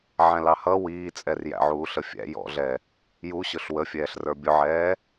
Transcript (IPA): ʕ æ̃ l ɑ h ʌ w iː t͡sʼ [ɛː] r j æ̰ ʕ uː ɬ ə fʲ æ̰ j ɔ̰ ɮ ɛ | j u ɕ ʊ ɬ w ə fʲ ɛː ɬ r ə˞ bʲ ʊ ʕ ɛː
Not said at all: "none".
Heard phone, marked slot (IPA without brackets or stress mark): ɛ